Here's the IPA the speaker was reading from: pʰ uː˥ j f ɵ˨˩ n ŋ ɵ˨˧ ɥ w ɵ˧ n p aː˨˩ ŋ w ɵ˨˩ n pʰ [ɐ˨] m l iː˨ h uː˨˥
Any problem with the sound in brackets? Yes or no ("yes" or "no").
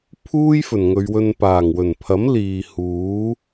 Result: yes